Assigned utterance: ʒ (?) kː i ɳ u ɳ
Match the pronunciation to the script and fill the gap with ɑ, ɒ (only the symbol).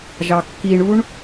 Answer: ɑ